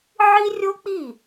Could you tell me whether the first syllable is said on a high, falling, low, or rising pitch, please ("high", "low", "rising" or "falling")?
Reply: high